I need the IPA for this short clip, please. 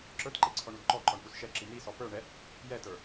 ǁ ə˞ t ǃ e ǀʰ ɔ ɳ u d ǃ ɔ ǃ ɔ ɳ p u s ʃ ɛ ǁ i n̪ i s ɔ p ə˞ ɳ ɛ | j ɛ t ə˞

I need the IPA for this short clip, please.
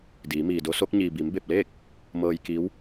d iː˩˧ m iː˩ d o˧˥ s o˧˥ k̚ ɲ iː˩ b i˩˧ m b e˧˩ p̚ l e˥˨ k̚ | m ɤː˧ j k i˧˥ w

